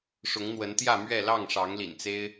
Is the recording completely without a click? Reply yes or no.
yes